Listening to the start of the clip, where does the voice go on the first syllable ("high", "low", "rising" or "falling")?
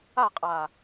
falling